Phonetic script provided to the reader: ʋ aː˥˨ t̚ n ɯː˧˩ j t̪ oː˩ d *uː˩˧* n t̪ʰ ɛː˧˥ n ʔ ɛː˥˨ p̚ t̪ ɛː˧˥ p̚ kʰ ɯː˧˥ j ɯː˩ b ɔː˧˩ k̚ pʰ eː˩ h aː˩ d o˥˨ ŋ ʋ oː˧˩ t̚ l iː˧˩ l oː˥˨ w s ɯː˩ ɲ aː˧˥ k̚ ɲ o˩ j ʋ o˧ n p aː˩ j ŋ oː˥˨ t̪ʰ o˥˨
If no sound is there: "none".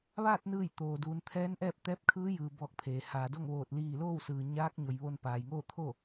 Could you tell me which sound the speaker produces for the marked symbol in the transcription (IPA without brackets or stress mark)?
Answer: uː˩˧